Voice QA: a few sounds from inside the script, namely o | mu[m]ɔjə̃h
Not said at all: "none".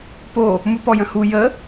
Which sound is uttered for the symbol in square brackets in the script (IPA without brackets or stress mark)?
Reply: p